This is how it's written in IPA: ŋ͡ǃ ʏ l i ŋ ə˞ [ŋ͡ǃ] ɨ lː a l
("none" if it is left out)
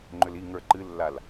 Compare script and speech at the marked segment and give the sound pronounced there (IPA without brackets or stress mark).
ǃ